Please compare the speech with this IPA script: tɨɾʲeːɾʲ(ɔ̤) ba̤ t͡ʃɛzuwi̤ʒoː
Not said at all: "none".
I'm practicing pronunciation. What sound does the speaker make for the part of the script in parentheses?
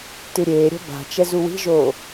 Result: ɔ̤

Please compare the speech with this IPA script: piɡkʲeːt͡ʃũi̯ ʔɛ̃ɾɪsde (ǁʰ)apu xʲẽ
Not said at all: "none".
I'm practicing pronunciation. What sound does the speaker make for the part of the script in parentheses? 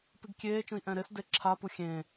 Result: ǁʰ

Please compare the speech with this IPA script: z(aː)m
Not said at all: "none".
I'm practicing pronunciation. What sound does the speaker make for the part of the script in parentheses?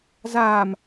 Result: aː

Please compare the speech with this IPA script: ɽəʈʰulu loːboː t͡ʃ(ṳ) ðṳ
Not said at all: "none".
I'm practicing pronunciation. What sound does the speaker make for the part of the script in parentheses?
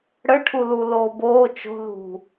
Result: o̤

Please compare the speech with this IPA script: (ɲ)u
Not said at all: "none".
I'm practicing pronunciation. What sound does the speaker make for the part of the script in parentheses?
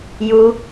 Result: j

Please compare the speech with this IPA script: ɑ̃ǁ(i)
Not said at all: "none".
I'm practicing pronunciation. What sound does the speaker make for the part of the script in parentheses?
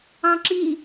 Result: i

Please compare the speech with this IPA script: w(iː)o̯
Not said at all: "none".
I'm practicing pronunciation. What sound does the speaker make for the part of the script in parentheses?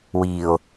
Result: iː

